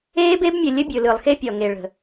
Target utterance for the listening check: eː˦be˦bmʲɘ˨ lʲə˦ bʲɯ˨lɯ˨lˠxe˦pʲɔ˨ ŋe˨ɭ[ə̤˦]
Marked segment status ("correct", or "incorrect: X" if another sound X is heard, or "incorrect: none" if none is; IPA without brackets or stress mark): incorrect: ə̤˨